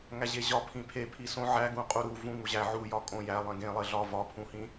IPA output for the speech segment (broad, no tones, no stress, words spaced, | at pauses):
ŋæʑeʑɒ pʰĩpʰe pʰisõ ʕæɡũ qʼuɾu vũ ŋuʑæ ʕujɒ kʼõjæ lˠẽɡẽlˠe ɮɒ vɒpʰũhĩ